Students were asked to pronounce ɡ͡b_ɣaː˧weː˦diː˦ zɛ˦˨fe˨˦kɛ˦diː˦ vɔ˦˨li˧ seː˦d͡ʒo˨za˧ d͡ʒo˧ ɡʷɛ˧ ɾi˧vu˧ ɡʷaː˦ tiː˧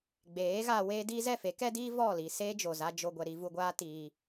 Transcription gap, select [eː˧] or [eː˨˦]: eː˨˦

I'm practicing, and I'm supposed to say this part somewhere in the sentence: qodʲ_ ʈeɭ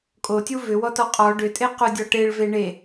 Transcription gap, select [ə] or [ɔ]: ɔ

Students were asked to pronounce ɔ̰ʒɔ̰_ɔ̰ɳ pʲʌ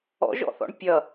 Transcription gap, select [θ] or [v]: θ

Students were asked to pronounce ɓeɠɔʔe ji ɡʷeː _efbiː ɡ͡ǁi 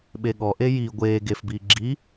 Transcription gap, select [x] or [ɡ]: ɡ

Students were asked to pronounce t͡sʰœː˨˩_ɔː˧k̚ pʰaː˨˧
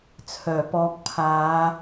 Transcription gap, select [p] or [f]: p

